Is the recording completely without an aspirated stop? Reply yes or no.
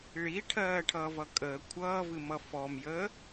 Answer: no